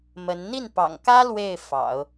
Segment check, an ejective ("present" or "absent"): absent